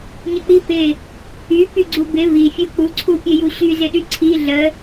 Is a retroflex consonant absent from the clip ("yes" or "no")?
yes